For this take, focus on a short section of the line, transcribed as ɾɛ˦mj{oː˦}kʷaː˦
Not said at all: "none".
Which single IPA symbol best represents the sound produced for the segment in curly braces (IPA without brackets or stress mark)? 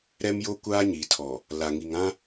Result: o˦